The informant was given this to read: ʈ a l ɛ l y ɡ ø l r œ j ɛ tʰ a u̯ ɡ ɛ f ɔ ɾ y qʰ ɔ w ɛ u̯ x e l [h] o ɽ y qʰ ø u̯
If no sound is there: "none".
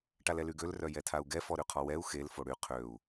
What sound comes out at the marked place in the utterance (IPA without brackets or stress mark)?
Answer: f